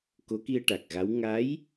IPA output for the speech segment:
k o˧˥ k i˧ ə̯ ʈ a˨˩ k̚ ɣ a˧˥ w ŋ a˧˥ j

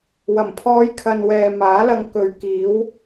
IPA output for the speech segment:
w ɐ˨˩ m pʰ ɔː˧ j kʰ ɐ˨ n w ɛː˨ m aː˨˥ l ɐ˧ ŋ k ɵ˨˧ ɥ k iː˨˥ w

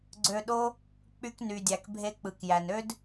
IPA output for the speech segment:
ɡ͡ǀ ø˧ ɗ o˦ | k͡p y˧ k n y˨ dʲ æ˨ k bʱ e˧ k͡p ɯ˨ k j æ˨ n ø˦ d

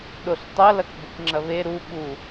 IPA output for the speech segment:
ɗ o ɬ tˤ ɐ l ɐ k b ɘ k ŋ͡ǁ ɐ β e ɾ u ɓ u

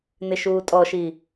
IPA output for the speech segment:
n ɪ ʃ uː tʼ ɔ ʃ i

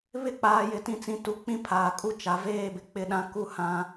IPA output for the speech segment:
β ɪ˦ k͡p aː˨ j ɪ˨ t ĩ˨ t͡s ĩ˨ t u˨˦ k͡p ĩ˦ pʰ aː˨ kʼ u˦ t͡ʃ a˨ v eː˦ b ɪ˨ k͡p ɪ˦ ɗ ã˦ k u˦ h ã˦

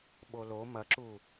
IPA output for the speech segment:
ɓ o l o m ɐ ǁ u

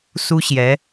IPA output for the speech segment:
s u˥ ɕ j ɛ˧˥

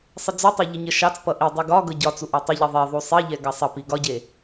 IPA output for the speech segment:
sˤ ə d͡z u tˤ e ʎ ə ɲ ə ʃ ɑ t͡s p ʌ ʔ i dˤ u ɡ ɒ ɡ ɤ ɟ ɒ t͡s u ʔ ɑ tˤ e ʎ i ðˤ e ðˤ u sˤ i ʎ ɛ ɡ ɑ sˤ ʌ p i ɡ ɒ ɟ e

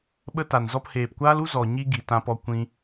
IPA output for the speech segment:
ɓ ə˧ t a˨ n z ɔ˧ p h eː˨ p kʷ aː˦ l u˦ z ɔ˨ ɲ i˦ ɡ i˨ t ã˧ p ɔ˧ kʷ ĩ˧

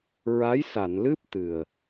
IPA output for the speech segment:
ɹ a˧˥ j s a˨˩˨ n l ɨ˦˥ p̚ t̪ ɨ˨˩ ə̯

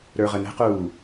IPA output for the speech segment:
ɾ ə˞ ʁ ə n ə̤ q uː

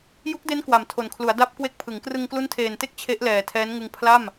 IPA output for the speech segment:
j u˦˥ k̚ d e˦˥ n k w a˨˩ m tʰ o˨˩ n kʰ l u˩˦ a̯ d a˦˥ p̚ k w e˦˥ k̚ pʰ ɯ˩˦ ŋ k r ɯ˧ ŋ k l u˦˥ n tʰ eː˨˩ n t e˥˩ k̚ t͡ɕʰ e˦˥ ʔ l ɛː˨˩ tʰ ɛː˦˥ n ŋ ɯ˧ ŋ pʰ l a˥˩ m

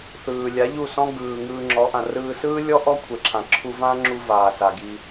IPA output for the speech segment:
θ ɯː˨ lʲ a˨˦ ʎ u˦˨ s ɔ̃˦ ɡ ɯː˧ ŋ ɯː˧ ŋ͡ǁ ɔ˨˦ ʔ ã˨ r ɯː˧ s ɯː˦ lʲ ɔ˦ ʔ ɔ˦ kʷʰ e˨ ǁʰ ã˨ ǁʰ u˧ v ã˦ ŋ͡ǁ u˧ v aː˨ s a˨ ɡ i˧

